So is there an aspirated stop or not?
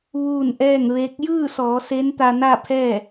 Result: yes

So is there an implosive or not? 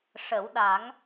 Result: yes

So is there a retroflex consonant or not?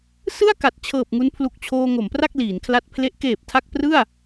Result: no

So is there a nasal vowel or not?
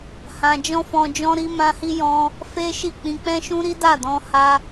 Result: yes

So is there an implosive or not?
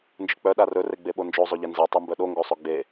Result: yes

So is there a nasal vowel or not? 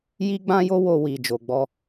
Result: yes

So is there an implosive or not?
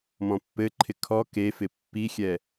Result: no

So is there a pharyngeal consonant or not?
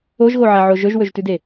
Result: yes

